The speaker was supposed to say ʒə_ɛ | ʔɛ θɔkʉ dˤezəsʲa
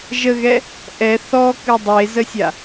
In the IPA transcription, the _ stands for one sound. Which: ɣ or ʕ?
ɣ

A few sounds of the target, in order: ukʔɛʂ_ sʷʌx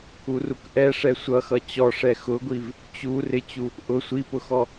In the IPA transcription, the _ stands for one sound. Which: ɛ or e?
ɛ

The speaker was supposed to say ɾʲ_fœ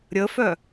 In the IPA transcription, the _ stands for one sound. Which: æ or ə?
ə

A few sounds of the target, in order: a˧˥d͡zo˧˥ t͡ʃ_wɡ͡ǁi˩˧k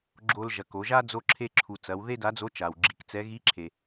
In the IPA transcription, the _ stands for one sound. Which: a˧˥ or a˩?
a˩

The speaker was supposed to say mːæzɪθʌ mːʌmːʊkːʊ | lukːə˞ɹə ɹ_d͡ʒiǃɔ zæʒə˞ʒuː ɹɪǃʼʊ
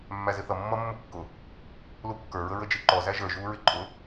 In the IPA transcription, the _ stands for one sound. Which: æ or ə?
ə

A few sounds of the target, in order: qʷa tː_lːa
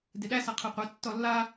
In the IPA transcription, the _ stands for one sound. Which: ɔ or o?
ɔ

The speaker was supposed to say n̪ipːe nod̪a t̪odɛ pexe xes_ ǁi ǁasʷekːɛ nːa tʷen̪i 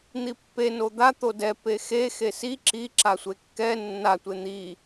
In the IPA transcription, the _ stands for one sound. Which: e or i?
i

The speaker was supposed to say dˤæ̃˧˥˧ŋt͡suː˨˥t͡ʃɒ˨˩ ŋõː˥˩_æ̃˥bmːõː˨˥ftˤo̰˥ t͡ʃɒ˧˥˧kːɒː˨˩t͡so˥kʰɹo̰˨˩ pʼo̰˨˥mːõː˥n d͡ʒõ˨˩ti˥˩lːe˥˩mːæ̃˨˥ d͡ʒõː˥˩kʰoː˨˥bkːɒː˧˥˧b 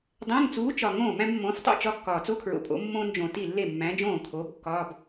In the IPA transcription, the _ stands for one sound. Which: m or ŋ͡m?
m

